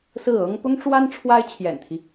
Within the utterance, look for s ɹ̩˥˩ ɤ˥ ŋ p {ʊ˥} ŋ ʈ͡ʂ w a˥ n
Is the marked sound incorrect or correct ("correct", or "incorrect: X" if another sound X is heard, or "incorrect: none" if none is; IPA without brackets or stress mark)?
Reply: correct